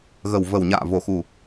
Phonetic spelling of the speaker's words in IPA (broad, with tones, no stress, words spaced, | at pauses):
ɣə˨˩wvə˨˩wɲa̰ː˧˨ vo˨˩xu˨˩